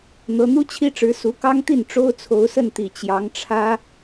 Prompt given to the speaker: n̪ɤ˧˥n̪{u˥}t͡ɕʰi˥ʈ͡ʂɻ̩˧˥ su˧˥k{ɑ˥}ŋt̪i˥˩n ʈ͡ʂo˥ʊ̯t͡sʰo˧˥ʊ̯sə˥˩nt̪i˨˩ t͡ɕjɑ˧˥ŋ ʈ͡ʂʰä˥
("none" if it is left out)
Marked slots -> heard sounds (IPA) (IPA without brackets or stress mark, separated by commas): u˥, ɑ˥